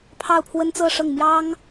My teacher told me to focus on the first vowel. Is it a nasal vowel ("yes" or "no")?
no